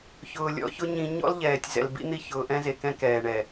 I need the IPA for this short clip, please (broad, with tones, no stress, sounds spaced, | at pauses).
ç ʊː˨ lʲ ɔ̰˦ ç ʊ˦ ɲ ĩ˦ ɲ ɔ̰˦ l ʎ ɛː˨ tʲ z ɛ̰˨ l b ḭ˦ n̪ i˦˨ ç ʊː˨ ʔ ɛ̃˦ z e˨ k ɛ̃˦ k ɛː˨ ɳ ɛ˨